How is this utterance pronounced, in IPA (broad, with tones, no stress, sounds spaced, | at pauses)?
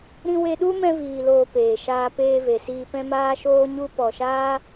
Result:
ɾ ĩ˧ w e˧ ɗ u˦ m ɛ̃˧ v iː˨ l oː˨ p eː˨ ʃ aː˧ p eː˧ v e˨ s iː˧ p ɛ̃˦ m aː˦ ʃ oː˦ ɲ u˦ p ɔ˨ ʃ aː˦